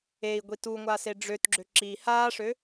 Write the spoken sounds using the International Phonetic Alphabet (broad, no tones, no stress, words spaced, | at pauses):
ei̯ ɡʷituŋʷa seɖ͡ʐøtɡ͡ǁø ǁi haːʂø